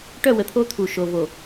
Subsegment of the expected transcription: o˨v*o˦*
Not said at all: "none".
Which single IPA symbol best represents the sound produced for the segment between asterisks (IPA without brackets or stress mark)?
o˨